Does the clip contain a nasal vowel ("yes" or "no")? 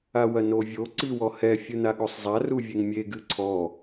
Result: no